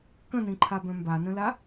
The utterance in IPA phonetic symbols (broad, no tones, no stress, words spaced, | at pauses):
kə̃nĩǃʰabœ̃ mbanə̃la